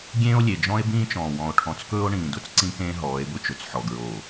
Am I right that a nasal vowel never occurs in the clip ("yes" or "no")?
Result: no